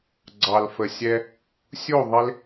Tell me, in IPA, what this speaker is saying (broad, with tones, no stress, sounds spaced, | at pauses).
ɡ͡ǀ ɑ˨ l f ə˨ sʲ ɛ˧ | sʲ u˦˨ ðˤ ɪ˦ l